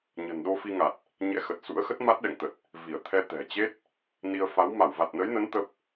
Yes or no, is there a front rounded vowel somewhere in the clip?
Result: no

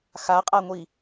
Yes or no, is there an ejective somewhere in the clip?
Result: yes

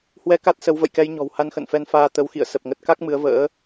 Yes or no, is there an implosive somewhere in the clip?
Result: no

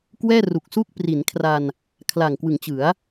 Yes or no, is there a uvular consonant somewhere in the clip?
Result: no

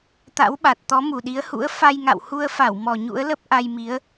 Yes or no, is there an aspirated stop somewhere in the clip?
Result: no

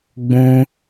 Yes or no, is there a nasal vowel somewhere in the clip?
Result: yes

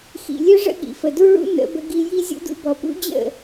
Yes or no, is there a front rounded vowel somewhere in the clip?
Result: yes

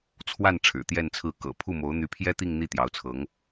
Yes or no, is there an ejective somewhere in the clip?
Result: no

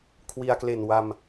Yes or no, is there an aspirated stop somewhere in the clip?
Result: yes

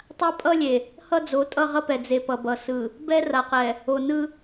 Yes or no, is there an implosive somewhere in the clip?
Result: no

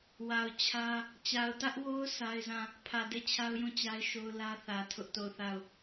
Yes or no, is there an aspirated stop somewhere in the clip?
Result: yes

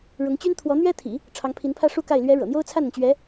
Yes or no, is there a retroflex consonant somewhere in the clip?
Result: yes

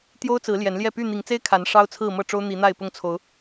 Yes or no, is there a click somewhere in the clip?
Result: no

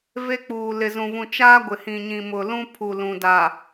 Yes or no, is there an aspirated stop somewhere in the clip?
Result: yes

